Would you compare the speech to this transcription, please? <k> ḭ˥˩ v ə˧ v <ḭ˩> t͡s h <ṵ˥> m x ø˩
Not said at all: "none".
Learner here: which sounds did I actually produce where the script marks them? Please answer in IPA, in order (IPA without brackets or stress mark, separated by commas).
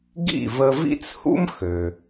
ɡ, ḭ˥, ṵ˥